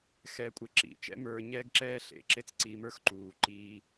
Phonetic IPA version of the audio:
xɛ˧kʷʼe˧ǁḭ˩ t͡ʃɛ̰˥ mə˞˧ɲɛ˥ɡǁɛː˥ ɬḛ˩ǁe˥t͡sǀi˧mə˞˥x ǃuː˩ǃiː˧

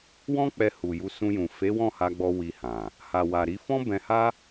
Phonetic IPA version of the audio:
wɔ̃˦k͡pɛ˧hu˨ju˧ sũ˧jũ˨ fe˨˦ wɔ̃˦˨ha˧ɡ͡bɔ˧ wi˧hã˨ | ha˨wa˨ɾi˨˦ fɔ̃˦bɛ̃˧ha˦

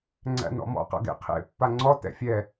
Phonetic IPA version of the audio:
ŋ͡ǀæ̰nɔ̰mɔ̰ qa̰ɡḛqʰḛ pːaŋ͡ǀɔ tɛ̰fʲɛ

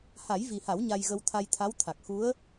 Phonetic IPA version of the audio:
ha˨˩˦jvi˨˩ha˨˩˦w ɲa˧jɣə˧wt̪ʰa˧jt̪ʰa˧˥w t̪ʰa˨˩k̚xu˧˥ə̯

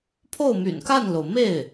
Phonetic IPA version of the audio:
pʰo˥˩ʊ̯my̰˨˩nka˥˩nlo˩ʊ̯ me˥˩ɪ̯

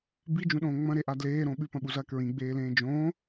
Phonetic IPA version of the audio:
bid͡ʒũɗõː ŋ͡mɐ̃ɾeʔa dleːɾõ ɓʉpɐ̃ɓuzɐː kɹĩɡ͡beːlẽː d͡ʒõː

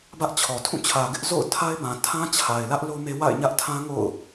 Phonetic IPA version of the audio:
bä˦ʔt͡ɕʰɔ˨ tʰũ˦˨t͡ɕʰä˨ɡɪ˦ʔ zo̰˦˨ʊ̯tʰa˦ɪ̯ bã˨ tʰã˦t͡ɕʰa˨ɪ̯lä˦ʔ lo˦me˦ wa̰˦˨ɪ̯ɲä˦ʔtʰã˦ŋo̰˦˨ʊ̯

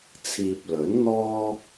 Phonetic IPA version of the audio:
t͡sʰiː˨p̚lɵ˨˥n n̪ɔː˥

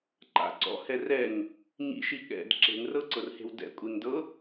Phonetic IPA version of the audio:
ǃa̰ ǀɔ̰ hɛrɛŋ | ɲḭʃi ɠɛ̰d ǁe̤ŋrɤ ǀɤrhe̤wdɛ̰ kʷʼeŋdɤ

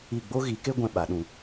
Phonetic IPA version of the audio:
i˦˨ ɡ͡bo˦ɣi˨˦ke˦ ɡʷɛ̃˦ ɓa˨˦ɗũ˧

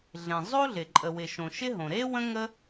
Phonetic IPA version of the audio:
ɮẽ˩ zˤo˥ɮɪ˩ ǃʼə˩wɪ˩ʃõ˩ ʃɪ˥ɦõ˩ ɾe˥ wə̃˥ŋə˥

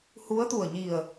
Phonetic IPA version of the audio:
hu˧˥ə̯t̪u˧˩ə̯ɲi˧˩ə̯

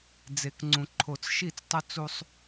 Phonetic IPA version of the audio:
d͡ze˨kŋ͡ǀũ˨ ǃʰo˨t͡sʃi˦˨t͡stˤɵ˦ t͡su˦sˤ

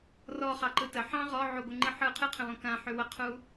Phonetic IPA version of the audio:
rɔ χɑǃɯtə ħɑ̃ ʁɔ ʕuɡʷɯ ŋ͡ǃɨħɯ qʰɨqʰə̃wɔ̃ kãħy wəqʰu

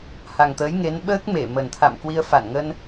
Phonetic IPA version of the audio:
ha˨˩ŋt̪əː˨˦jŋe˨˦nɓəː˦˥k̚ me˧˩ mə˨˩nt̪ʰa̰˧˨mkwi˧ə̯ fa˧˩nŋə˧n

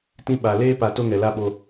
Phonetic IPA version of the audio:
tĩ˧ ɓa˨ leː˦pa˨ to˦ŋɛ˨ la˦ɓo˧

